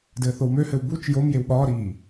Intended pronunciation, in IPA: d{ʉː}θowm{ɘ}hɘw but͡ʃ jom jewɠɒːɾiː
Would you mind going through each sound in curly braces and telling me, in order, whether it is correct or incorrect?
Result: incorrect, incorrect

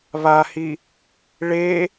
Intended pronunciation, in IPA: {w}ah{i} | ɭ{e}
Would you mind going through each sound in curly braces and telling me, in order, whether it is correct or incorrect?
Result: incorrect, correct, correct

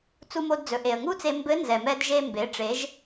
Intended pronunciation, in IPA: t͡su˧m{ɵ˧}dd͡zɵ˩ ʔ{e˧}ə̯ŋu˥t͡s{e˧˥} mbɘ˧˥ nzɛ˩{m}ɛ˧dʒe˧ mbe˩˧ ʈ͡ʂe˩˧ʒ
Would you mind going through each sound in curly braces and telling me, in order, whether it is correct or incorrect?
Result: incorrect, incorrect, incorrect, correct

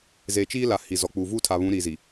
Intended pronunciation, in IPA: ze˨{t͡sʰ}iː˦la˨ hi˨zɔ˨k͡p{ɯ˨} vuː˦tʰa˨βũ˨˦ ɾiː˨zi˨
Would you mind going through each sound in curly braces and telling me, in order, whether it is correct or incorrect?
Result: incorrect, incorrect

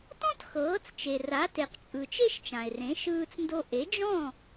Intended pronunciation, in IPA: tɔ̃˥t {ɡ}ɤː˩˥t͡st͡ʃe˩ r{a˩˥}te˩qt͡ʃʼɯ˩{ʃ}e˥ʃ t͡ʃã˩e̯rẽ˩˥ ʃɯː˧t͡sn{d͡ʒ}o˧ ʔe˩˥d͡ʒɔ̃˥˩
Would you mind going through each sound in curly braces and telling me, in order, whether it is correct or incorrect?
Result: incorrect, correct, incorrect, incorrect

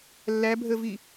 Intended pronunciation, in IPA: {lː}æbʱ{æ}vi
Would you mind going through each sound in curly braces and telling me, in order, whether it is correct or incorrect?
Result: correct, incorrect

